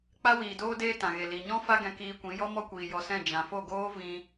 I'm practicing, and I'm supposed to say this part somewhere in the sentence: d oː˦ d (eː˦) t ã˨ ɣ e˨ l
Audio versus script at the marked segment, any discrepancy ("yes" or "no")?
no